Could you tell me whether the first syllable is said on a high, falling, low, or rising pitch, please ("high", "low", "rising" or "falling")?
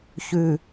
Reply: low